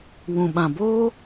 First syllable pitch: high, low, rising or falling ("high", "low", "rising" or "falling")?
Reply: low